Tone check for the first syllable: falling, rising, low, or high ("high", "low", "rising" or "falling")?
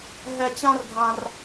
high